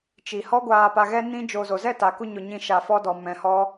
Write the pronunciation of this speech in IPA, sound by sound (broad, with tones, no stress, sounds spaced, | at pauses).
t͡ʃ i˨ h ɔ˦ ɡʷ aː˧ p a˧ ɣ ɛ˦ n ĩ˦ d͡ʒ o˧ z o˨ z ɛ˦˨ t a˨ k u˧ ɲ o˧ ɲ ĩ˦˨ ʃ a˧ f ɔ˦ d ɔ˧ m ɛ̃˧ h ɔ˦